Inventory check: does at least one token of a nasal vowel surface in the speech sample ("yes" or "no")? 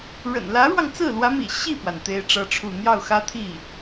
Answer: no